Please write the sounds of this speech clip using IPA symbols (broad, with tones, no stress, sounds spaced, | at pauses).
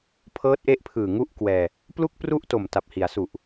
pʰ ɤː˦˥ t̚ ʔ e˦˥ ʔ pʰ ɯː˨˩ ŋ u˦˥ ʔ k w ɛː˧ | p l u˥˩ k̚ p r u˥˩ ʔ t o˨˩ m t a˨˩ p̚ h i˩˦ a̯ s u˨˩ ʔ